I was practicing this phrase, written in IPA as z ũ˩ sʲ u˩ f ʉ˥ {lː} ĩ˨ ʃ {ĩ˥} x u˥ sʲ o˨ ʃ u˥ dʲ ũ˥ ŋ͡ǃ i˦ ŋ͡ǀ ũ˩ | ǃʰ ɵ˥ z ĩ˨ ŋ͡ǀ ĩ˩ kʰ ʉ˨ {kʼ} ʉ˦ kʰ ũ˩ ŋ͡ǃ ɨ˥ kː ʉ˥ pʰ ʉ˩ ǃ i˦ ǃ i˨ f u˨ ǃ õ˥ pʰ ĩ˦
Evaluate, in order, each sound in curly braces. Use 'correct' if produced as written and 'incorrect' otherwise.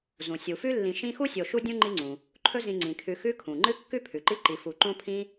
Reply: correct, correct, incorrect

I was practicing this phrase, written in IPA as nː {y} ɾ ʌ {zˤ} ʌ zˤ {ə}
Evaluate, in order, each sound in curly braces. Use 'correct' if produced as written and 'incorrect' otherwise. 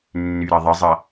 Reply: correct, incorrect, incorrect

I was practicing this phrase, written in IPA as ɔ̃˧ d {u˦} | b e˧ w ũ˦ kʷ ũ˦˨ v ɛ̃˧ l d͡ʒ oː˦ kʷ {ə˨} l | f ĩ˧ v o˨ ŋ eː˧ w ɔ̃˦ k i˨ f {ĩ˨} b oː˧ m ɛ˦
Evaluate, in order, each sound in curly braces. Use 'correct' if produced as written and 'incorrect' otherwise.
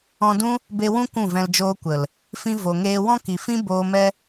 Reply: incorrect, correct, incorrect

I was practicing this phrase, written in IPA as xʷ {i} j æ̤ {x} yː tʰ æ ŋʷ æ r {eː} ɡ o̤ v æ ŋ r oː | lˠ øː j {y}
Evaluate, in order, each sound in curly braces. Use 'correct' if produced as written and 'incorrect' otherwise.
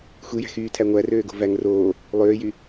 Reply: correct, correct, incorrect, correct

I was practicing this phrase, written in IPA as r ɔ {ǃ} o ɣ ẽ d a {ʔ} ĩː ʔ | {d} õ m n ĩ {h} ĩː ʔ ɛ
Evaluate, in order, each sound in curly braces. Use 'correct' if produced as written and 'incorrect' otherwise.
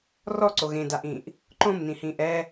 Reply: incorrect, correct, incorrect, correct

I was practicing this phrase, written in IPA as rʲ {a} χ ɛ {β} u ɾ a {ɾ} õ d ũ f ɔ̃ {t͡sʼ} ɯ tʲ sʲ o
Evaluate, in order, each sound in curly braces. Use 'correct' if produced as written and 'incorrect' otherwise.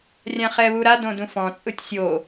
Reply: incorrect, correct, incorrect, correct

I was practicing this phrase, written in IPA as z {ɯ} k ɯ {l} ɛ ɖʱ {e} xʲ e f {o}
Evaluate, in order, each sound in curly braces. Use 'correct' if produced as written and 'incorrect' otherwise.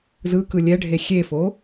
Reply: correct, incorrect, correct, correct

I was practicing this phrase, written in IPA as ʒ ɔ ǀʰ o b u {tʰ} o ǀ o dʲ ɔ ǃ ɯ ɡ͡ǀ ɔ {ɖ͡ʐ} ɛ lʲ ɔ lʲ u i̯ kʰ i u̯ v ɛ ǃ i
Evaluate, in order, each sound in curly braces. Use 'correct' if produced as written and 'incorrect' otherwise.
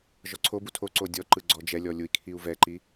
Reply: correct, incorrect

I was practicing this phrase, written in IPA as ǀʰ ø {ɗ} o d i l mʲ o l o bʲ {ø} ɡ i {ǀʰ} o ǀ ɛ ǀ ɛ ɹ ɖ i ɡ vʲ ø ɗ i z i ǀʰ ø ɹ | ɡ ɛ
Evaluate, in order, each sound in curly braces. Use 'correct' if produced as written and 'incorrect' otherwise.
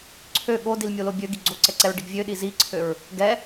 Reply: incorrect, correct, incorrect

